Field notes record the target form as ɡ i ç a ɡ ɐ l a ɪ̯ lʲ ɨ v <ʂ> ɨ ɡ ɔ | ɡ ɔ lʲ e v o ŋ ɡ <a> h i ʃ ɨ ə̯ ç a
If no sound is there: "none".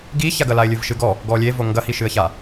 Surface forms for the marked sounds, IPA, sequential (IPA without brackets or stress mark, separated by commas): ʃ, ɐ